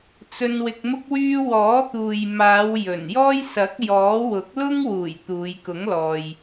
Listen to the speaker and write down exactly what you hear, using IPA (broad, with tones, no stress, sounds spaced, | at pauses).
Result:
t͡s ɵ˧ n w ɪ˧ k̚ m ʊ˥ k̚ w yː˥ w ɔː˨˥ t̪ uː˨ j m aː˨˧ w j ɵ˨˩ n j ɔː˥ j s ɐ˨˥ k̚ j ɔː˨˥ w ʊ˨˥ k̚ l ʊ˥ ŋ w uː˨˩ j t̪ uː˨˧ j k ʊ˨˥ ŋ l ɔː˨ j